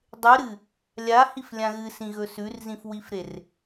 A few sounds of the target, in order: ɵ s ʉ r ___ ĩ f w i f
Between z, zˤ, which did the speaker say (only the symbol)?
z